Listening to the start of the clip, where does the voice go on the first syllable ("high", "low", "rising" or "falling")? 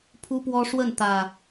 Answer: high